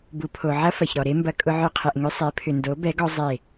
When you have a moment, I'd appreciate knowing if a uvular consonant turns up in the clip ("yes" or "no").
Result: yes